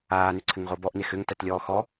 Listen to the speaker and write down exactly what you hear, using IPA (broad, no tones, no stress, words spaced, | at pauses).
aːnʏ ǀʰɘŋʁobɔʔnex ʏŋtæt lʲɔːxɔ